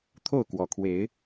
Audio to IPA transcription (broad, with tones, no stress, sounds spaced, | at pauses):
t̪ʰ o˥˨ ʊ̯ k w ɔ˨˩ kʰ w e˨˦ ɪ̯